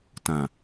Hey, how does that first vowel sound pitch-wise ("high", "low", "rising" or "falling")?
low